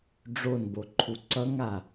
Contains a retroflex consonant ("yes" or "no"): yes